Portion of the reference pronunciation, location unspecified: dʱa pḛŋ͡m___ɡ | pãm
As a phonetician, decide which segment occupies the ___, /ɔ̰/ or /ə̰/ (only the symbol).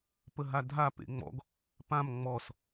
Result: ɔ̰